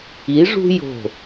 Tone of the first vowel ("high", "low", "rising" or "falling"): rising